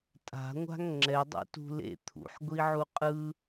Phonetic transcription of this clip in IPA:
tʼ a̤ ŋʷ a̤ ŋ ŋ͡ǁ ɛ dˤ ṵ t ṳ l ḛ t̪ʰ ṵ ħ ɡʷ i ʕ u qʼ ɯ

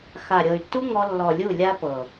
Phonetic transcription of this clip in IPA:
x a˨ ɾʲ ɤ˨ y̯ tː u˦ ŋ ɔ˧ lː ɔ˨ lʲ u˦˨ lʲ a˦ p ɤ˨

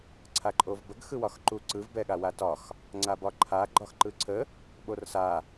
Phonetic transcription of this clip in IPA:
ǀʰ a ǃʼ o v b ə ɡ x ɯ w ɒ x ǃ u ǀ ɯ v b ɛ ɠ a w a t ɒ x | ŋ͡ǀ a b ɒ ǃʰ a ɡ͡ǃ ɒ x ǃ ɯ ǀʰ ə | ɓ o r s a

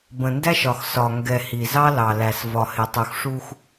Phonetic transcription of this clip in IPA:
b ə̃˨ n d æ˦ ʃ ɒ˨ x s ɒ˨ ŋ ɡ ɛ˨ h i˨ z ɑ˦ l ɑ˨ l æ˨ s v ɒ˨ h ɪ˨ tˤ u˨ x ʂ u˦ x

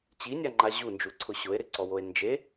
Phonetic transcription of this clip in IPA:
t͡ɕ i nʲ a ŋ͡ǃ a ʑ u n d͡ʒ u ǀʰ ʊ ɕ ʊ e̯ ɾ ɪ ǀ ɔ w o e̯ n d͡ʒ e

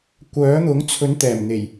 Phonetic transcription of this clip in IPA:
kʷ œː˨˥ n̪ ʊ˨˥ ŋ t͡sʰ ɵ˨˥ n t̪ ɛː˨˩ m n̪ e˨˩ j

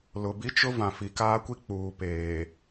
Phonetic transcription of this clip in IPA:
l ʊ˨ b i˦ t͡ʃ ʊ˦ v ã˨ f i˨ k aː˦ kʷ i˦ k͡p uː˨ p eː˨

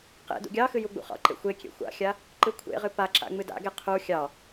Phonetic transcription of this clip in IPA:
q ḛ d ṵ ɡʲ ɑ x ɨ j u ɡ͡b ṵ χ ɑ̰ ǃ ḛ xʷ e kʲ ḛ xʷ a̰ xʲ a | ǃ ɨ kʷʰ ḛ ʁ ɨ p a ǁ a̰ ŋ͡m ɨ d a̰ ɡ e qʰ u xʲ ɑ

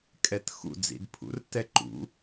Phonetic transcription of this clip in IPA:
kʼ ɛ t x ṵ d͡z ḭ d pʰ ṵ r t ɛ ǃ ṵ

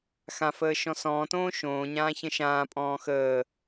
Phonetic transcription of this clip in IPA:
x ã f əː ʃ ɔ̃ s ɔ̃ː t õː ʃ õː ɲ ãː ç ə̃ ʃ ãː pʼ ɔ̃ː x əː

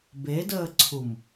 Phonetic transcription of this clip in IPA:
b e d əː ǀʰ u m

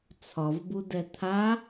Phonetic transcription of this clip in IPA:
t͡sʰ ɒ v b u d ɛ t̪ʰ a

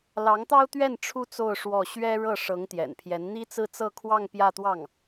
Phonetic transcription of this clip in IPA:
l ɑ˧˥ ŋ t̪ ɑ˥ ʊ̯ t̪ ɥ ɛ˥˩ n ʈ͡ʂʰ u˥ t͡s o˥˧ ʊ̯ ʂ w ɔ˥˩ ɕ ɥ ɛ˥ ɻ ɤ˥˩ ʂ ɤ˧˥ ŋ t̪ j ɛ̰˨˩ n pʰ j ɛ˧˥ n n̪ i˥ t͡s ɹ̩˥˧ t͡s ɤ˥˧ kʰ w ɑ˥˧ ŋ p j ä˥˧ t̪ w ɑ˥˩ ŋ

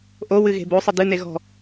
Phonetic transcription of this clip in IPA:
ʔ o w ɨ ɣ e̤ b o sˤ ɘ d ɨ n e ɣ ɔ̤

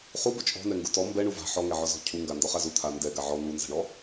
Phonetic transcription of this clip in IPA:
χ u b ʊ t͡ʃʼ ɔ̤ n ɛ ŋ ɡ u t ɔ m b ɛ ɳ u v a̤ ħ ɔ ŋ ɛ ʕ ɔ z ɔ̤ cʰ u ŋ ɡ a n d ɔ χ a z u t̪ʰ a n d ɛ ɡ a ʕ ɔ n u n z a̤ ɳ ɔ

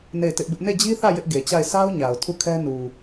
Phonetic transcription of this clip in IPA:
n e˦˨ ɪ̯ t ɪ˦ ʔ b ɪ˦ ʔ n e˦˨ d͡ʑ i˦ θ ä˦˨ j ɪ˦ ʔ ɡ e˨ t͡ɕ a˦˨ ɪ̯ s a˦ ʊ̯ ɲ a˨ ʊ̯ tʰ u˦˨ kʰ ɛ˦ n u˨

